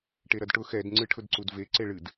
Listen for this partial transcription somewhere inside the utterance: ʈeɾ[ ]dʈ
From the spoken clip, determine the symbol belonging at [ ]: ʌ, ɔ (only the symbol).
ʌ